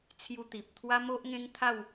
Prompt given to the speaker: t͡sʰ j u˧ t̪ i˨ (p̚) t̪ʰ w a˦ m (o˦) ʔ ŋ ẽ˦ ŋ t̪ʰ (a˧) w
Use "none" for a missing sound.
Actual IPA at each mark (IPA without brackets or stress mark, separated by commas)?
p̚, o˦, a˥˧